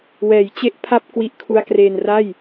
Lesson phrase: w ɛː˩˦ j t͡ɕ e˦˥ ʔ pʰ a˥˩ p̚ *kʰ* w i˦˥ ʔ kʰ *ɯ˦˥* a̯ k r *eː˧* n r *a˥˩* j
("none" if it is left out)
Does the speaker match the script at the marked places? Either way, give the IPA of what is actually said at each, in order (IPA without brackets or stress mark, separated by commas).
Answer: k, u˦˥, eː˧, a˥˩